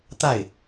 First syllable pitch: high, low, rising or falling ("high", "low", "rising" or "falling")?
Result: falling